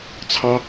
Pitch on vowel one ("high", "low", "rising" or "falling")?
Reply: high